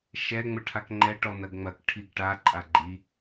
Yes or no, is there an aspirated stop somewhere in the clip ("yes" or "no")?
yes